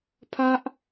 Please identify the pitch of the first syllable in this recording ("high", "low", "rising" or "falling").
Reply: high